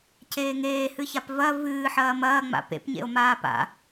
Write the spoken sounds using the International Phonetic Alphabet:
ceːŋeːhɨçap vɐ vɨːħɐː mɐː ŋ͡ma̰pḛp ɲḛo̯maːpa̰

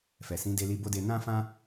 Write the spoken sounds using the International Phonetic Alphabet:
fɛ˨sĩ˨˦de˧li˧ bo˦de˧ nã˦fã˦

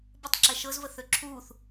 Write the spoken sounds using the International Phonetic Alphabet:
bətˤǁɛ ʃɤzvəθø ǁʰuːθ

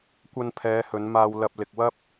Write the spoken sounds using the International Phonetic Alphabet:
kʷɐ˧npʰɛː˨˧hɵ˨˧nmaː˧w lɐ˧p̚lɪ˧k̚wɐ˥p̚

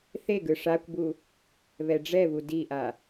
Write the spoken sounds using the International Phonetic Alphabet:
θeɡɯ ʂakʷbu | βɛɖ͡ʐɛβu diʔa

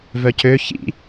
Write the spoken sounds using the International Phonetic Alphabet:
vœcø çḭ

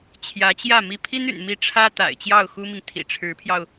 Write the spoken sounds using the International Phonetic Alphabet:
t͡ɕʰjä˧˥t͡ɕjä˥˩ mi˥ pʰi˥ny̰˨˩nmi˧˥ ʈ͡ʂʰä˥ t̪a̰˨˩ɪ̯t͡ɕjɑ˥˩ʊ̯xu˥mi˨ŋ t̪ʰḭ˨˩ʈ͡ʂʰɻ̩˧˥pʰjɑ˧ʊ̯

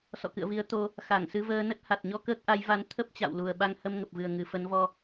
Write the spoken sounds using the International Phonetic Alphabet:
sɔ̰˧˨kɨ̰˧˨ə̯vi˨˦ə̯ t̪o˧ | xa˧˩ŋsɨ˧vəː˧nə˦˥t̚ ha˨˩t̚ɲɔ˧ kəː˦˥k̚ʔa˨˦jva˧n t̪ʰə˦˥p̚t͡ɕa̰˧˨w lu˨˩ə̯ɓa˧ŋ hə˧mŋə˨˩p̚vɨ˨˩ə̯ ŋɨ˨˩fə˨˦nvɔ˧

